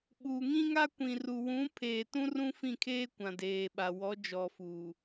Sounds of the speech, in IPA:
ɓuː˨ŋĩ˦ŋa˦kʷĩ˨ ru˨wũ˨˦ pʰeː˨tũ˦ rũ˦fĩ˦˨kʰeː˦ kʷã˨deː˨ɓa˨wɔ˨˦ d͡ʒɔ˨ fuː˨

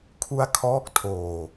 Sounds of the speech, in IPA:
kʰu˦˥a̯kʰɔː˦˥k̚tʰoː˨˩

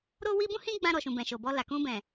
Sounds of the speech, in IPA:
ɾo˦wi˦ bũ˦hĩ˦ɡ͡bã˧ ɾɔ˨ʃũ˨bɛ̃˨ ʃo˨bɔ˧ la˨ kũ˧bɛ̃˨

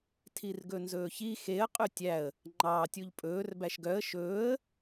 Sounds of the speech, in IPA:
tʰirɡɵnzɵːçi xeə̯ qʼytʲæə̯ | ŋ͡ǃɑ tʲuʎpʼɵːr bæʃɡœə̯ ʃɵːə̯

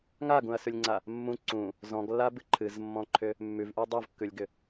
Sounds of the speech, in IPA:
ŋaɡũɐ̯sʉlʲŋ͡ǀa | mːũ ǀũ | zɔ̃ɡlːabɨ ǃʰɨzmːɔ̃ǃʰʏ | mːʉvʔʉ dˤuvkːʉlʲɡʏ

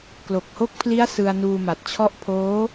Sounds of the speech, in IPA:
klo˨˩k̚ho˦˥k̚pʰli˦˥a̯ sɯ˧a̯nuː˧ma˨˩t̚ t͡ɕʰɔ˦˥ʔpʰoː˦˥

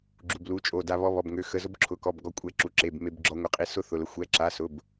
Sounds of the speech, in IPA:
ɡ͡ǁu˧˥˧blu˧˥˧t͡ʃʼo˧˥˧da˥ βɔ˥βɔ˧˥˧bŋø˧˥˧ xə˧˥˧zʊ˥b ǁʰʊ˧˥˧kɔ˧˥˧b ɡɔ˥kʷʼɛ˥ǁu˧˥˧ǁe˧˥˧b me˥bɡ͡ǁɔ˥ ŋʷə˧˥˧qʼi˧˥˧ sʊ˥ θʊ˧˥˧lə˥ xʷɛ˧˥˧ǁa˧˥˧sʊ˧˥˧b

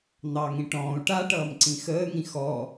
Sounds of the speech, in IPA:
n̪ɑŋĩ ʈɔ̃ːu̯ ʈaʈʌːmǀĩ xəːŋĩ xɔ

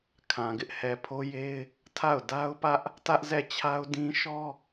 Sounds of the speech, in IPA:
kʰã˨ɡɪ˦ʔ hɛ˨pʰo˦je˦ɪ̯ | tʰa˦˨ʊ̯da˦ʊ̯pä˦ʔ | tä˦ʔzɛ˦˨t͡ɕʰa˦ʊ̯dĩ˦ ʃɔ˦

